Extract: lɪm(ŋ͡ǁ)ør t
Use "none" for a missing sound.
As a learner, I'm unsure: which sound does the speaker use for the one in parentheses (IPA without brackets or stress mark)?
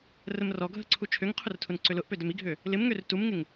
ŋ